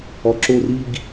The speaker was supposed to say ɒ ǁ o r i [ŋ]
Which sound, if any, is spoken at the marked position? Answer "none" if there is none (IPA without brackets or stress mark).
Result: ɡ